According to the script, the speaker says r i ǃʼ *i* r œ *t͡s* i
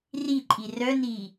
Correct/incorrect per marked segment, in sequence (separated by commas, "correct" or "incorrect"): correct, incorrect